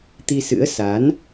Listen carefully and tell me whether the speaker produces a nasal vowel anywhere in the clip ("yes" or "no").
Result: no